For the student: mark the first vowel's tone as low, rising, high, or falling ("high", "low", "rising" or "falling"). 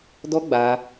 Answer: high